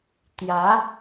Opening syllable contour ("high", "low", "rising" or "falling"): rising